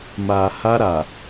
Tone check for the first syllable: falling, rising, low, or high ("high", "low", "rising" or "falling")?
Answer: low